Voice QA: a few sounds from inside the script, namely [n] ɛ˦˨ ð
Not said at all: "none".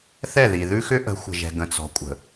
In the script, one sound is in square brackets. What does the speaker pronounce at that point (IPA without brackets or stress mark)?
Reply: θ